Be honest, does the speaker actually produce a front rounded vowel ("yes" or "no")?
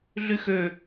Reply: yes